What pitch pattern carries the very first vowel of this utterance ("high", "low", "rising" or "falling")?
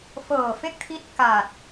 low